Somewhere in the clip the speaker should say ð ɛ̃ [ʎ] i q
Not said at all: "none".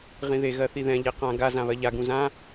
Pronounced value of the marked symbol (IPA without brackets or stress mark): ʎ